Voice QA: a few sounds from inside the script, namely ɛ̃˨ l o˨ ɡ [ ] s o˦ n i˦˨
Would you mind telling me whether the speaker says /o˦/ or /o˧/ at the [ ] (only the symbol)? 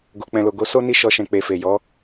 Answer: o˧